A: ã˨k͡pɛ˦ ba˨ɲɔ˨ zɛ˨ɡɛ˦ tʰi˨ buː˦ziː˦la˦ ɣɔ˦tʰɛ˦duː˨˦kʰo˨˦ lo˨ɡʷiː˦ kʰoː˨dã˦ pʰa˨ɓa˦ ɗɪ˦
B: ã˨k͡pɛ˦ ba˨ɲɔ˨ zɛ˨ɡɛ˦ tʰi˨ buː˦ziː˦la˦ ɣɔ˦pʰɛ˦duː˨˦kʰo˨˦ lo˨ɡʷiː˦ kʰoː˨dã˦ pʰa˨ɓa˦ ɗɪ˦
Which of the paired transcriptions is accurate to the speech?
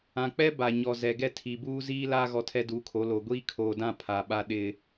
A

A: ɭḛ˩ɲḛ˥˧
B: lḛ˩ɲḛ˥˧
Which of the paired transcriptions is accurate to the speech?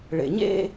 A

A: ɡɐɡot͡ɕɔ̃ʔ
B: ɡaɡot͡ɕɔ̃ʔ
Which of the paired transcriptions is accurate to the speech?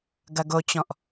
A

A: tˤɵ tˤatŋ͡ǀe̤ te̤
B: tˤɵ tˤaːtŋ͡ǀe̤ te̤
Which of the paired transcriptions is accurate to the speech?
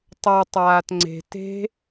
B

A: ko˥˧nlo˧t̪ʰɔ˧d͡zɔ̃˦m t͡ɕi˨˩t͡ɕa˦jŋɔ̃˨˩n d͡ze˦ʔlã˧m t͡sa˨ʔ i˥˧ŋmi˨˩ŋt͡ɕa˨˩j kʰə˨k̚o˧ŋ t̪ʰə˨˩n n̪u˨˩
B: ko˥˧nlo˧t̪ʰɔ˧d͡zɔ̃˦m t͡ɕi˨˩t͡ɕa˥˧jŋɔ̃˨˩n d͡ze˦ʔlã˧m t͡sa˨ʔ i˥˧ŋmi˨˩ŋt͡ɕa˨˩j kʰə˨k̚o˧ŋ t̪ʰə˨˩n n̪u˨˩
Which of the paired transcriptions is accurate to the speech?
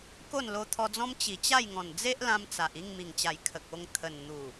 B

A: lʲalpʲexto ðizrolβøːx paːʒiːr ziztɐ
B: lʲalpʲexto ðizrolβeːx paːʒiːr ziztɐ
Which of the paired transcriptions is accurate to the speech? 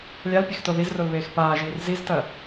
B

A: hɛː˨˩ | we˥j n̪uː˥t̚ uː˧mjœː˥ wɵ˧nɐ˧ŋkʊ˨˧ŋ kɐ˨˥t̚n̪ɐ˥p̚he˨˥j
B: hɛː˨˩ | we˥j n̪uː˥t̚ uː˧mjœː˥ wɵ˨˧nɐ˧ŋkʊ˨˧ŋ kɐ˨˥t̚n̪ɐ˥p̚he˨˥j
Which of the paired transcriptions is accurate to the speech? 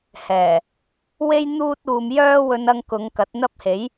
A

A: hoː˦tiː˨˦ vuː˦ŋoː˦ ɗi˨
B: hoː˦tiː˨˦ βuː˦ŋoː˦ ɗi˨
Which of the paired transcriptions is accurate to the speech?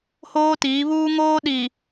B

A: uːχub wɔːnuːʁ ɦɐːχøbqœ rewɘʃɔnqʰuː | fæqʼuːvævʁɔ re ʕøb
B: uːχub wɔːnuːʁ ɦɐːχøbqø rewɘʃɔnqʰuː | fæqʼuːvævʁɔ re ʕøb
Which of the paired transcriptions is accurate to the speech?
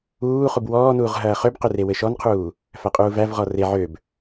B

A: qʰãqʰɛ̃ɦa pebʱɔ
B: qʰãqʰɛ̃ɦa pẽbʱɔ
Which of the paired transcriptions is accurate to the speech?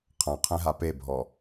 A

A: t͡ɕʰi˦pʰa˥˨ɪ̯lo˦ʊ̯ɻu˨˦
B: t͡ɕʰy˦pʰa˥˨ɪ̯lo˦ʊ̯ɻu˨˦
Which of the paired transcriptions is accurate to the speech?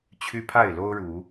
B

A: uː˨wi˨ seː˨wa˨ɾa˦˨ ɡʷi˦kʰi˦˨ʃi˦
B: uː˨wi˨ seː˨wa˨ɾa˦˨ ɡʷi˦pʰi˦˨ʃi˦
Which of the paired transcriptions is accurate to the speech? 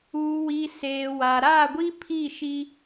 B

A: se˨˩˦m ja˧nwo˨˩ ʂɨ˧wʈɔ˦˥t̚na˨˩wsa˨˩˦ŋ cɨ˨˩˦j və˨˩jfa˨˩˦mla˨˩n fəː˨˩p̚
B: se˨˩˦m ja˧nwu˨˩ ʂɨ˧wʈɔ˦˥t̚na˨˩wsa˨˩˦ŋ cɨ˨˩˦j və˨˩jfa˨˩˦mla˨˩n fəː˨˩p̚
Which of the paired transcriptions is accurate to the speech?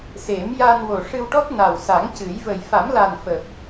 A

